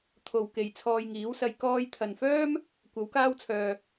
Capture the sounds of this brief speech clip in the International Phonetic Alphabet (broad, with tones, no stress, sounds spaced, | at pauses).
t̪ʰ o˨ w k e˨ j t͡sʰ ɔː˧ j ŋ iː˨˥ w s ɐ˧ j k ɔː˧ j t̪ʰ ɐ˨ n f œː˥ m | kʷ ɐ˨˥ w k aː˥ w t͡sʰ œː˧